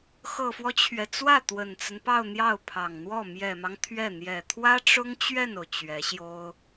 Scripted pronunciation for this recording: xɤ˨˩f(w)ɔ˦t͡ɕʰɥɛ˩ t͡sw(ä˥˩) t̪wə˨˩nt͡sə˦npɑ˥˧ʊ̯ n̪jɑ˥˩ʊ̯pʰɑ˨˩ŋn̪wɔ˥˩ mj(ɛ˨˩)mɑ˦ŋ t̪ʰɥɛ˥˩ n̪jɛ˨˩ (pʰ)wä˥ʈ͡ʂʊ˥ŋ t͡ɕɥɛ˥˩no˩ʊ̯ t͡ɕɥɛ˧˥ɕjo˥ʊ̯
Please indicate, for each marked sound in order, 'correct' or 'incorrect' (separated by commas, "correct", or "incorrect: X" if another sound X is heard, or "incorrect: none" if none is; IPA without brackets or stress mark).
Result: correct, correct, correct, incorrect: t̪ʰ